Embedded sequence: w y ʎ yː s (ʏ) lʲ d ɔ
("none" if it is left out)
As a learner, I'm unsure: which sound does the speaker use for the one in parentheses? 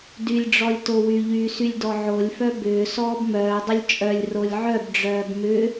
y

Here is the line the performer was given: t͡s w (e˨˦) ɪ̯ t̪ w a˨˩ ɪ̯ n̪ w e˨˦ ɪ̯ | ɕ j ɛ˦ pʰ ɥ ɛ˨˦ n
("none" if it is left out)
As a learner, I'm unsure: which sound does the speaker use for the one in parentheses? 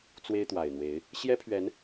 e˦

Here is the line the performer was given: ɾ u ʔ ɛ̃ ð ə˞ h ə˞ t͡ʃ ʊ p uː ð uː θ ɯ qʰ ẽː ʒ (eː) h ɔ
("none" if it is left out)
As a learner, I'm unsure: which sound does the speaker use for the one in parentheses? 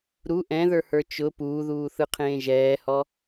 ɛː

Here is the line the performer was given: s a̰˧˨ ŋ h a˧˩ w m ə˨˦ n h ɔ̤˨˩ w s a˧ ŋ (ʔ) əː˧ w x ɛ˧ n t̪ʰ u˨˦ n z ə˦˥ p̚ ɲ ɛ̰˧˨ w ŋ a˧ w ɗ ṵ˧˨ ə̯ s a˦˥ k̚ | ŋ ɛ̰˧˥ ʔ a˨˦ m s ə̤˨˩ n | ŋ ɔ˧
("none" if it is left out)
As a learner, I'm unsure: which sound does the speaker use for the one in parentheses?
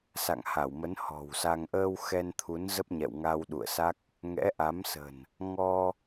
ʔ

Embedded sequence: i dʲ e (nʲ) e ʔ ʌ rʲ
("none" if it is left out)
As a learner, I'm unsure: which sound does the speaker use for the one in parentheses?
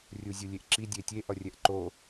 tʲ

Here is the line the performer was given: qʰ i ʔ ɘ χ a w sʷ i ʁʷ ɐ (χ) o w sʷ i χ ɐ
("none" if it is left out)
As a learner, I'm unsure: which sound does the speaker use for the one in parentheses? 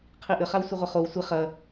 χ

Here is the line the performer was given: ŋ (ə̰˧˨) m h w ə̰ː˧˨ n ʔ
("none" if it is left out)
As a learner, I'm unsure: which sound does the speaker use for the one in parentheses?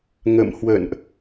ə̰˧˨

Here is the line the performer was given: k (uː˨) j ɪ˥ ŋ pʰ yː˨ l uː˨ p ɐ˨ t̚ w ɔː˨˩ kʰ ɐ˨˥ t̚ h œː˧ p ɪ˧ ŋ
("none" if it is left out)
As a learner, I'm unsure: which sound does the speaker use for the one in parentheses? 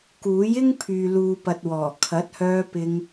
uː˨˥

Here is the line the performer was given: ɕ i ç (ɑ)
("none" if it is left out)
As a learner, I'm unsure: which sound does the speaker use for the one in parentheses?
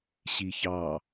ɑ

